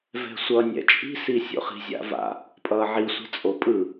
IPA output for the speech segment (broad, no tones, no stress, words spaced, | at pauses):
vɛ̤sʷʌ nʲɛ̰t͡ʃʼi̤si sʲo̰χi̤zʲa̰va̰ | pʼʌːʕisʷɛ̤ t͡sʼopʼɯ